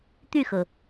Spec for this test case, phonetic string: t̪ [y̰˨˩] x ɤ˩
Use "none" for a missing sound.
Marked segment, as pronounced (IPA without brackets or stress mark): y˥˨